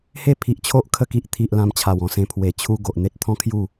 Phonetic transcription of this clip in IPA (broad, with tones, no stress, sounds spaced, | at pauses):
h e˥˧ pʰ i˨ ʔ t͡ɕʰ o˦ ʔ kʰ ə˧ k i˨ ʔ t̪ʰ i˨ ʔ l ã˧ m t͡ɕʰ a˨˩ w ɔ̃˧ s ẽ˧ pʰ w e˨˩ t͡ɕʰ u˦ ɡ o˨ ʔ n̪ e˦ t̚ t̪ʰ ɔ̃˦ kʰ j u˥˧